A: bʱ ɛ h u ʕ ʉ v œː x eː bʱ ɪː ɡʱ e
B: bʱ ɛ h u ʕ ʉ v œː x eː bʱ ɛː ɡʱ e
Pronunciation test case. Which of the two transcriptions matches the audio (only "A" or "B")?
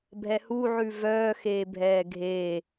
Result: B